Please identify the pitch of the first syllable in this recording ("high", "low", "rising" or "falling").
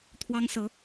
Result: high